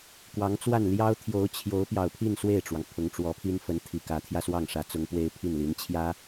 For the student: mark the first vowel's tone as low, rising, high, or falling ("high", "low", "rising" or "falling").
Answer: rising